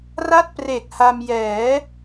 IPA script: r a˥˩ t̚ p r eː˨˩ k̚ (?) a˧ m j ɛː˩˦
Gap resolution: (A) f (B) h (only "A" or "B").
B